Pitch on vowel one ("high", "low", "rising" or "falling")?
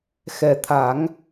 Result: low